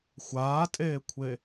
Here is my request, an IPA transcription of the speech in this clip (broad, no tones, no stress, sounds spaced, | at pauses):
xʷ aː tʼ eː kʷʰ e